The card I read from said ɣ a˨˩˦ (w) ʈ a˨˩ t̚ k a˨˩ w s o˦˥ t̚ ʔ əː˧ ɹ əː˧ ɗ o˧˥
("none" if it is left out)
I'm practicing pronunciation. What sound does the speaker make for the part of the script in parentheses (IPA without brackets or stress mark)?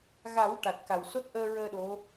w